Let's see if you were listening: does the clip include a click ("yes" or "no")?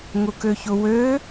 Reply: no